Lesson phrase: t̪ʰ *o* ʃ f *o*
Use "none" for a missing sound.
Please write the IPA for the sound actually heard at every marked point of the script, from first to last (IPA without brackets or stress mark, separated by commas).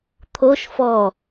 o, ɔ